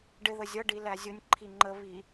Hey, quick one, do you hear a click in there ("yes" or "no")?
yes